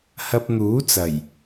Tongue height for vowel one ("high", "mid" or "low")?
low